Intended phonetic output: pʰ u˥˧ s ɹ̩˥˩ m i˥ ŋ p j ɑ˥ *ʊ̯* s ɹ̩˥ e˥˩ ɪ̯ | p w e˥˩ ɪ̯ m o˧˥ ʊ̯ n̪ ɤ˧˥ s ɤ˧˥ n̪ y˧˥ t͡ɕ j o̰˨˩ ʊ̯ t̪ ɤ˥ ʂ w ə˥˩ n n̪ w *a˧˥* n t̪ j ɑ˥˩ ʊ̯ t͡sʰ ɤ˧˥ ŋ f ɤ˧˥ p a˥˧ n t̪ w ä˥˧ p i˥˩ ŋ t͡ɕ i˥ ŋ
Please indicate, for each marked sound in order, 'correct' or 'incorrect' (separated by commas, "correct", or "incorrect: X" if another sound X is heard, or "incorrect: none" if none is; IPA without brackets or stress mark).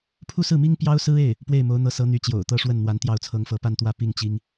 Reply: correct, correct